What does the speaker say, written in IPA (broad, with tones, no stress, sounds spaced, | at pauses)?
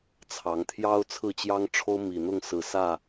t͡sʰ ɑ˨˦ ŋ t̪ʰ j ɑ˦ ʊ̯ t͡sʰ ɹ̩˥˨ t͡ɕ j ɑ˦ ŋ ʈ͡ʂʰ o˦ ʊ̯ m i˨˩ n̪ ʊ˥˨ ŋ s ɹ̩˨˩ s ä˥˨